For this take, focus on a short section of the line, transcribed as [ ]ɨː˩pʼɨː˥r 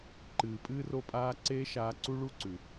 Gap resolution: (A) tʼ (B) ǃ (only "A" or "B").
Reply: B